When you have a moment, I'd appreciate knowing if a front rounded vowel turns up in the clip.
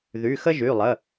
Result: yes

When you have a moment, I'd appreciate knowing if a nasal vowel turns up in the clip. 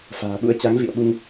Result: no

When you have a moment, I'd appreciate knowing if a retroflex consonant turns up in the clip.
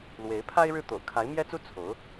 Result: yes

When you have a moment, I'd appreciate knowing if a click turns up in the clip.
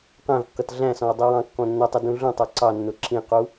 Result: yes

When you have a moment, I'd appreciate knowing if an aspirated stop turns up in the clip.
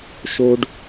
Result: no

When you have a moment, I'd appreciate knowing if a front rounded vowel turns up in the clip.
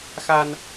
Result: no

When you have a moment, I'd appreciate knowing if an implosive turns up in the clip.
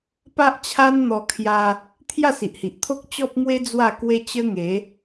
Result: no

